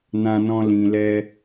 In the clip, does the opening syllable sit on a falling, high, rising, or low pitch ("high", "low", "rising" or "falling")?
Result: high